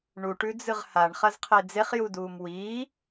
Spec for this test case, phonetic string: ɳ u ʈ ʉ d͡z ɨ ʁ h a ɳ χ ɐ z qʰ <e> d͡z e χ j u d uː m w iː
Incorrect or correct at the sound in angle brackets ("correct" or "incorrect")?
correct